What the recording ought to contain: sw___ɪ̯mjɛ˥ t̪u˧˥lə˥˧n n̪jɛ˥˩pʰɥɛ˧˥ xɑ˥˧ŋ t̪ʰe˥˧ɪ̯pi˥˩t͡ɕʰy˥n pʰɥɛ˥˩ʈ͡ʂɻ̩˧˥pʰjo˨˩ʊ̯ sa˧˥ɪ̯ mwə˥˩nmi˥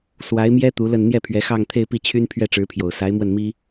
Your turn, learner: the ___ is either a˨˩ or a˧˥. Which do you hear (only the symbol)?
a˧˥